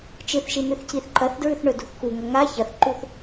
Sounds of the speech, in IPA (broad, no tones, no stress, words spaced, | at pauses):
t͡ʃɨθʃi n̪ʉθciθǃɐθdɹʉθ ɳɵdṳθkuŋɐ ŋa çɐθǃuθ